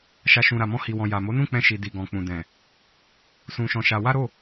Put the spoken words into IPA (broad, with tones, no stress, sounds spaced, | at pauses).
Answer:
ʃ a˧ ʃ ũ˨ ɾ a˨ m ɔ̃˧ h i˨ w ɔ̃˨ j a˨ m o˨˦ n ũ˦˨ k͡p ɛ̃˧ ʃ i˨ d i˨ ɡ ɔ̃˨ k͡p ũ˨ d ɛ̃˨ | s ũ˧ ʃ ɔ̃˧ ʃ a˧ w a˦ ɾ o˦˨